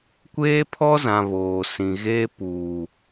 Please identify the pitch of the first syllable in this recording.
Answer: high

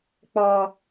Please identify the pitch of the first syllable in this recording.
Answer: high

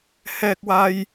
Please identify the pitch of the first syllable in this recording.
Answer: high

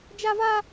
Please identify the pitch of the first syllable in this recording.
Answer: high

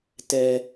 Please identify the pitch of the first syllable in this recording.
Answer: low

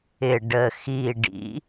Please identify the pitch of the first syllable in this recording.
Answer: low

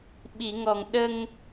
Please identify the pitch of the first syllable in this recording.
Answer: low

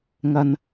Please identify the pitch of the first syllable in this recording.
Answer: high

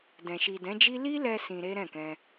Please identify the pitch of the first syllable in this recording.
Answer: low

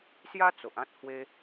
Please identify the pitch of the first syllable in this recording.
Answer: high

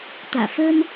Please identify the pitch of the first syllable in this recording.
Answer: low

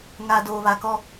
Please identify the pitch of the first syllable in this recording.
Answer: low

